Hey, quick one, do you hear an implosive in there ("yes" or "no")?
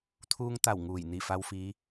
no